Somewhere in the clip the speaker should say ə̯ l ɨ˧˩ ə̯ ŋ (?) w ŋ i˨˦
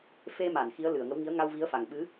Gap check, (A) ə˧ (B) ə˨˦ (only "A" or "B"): B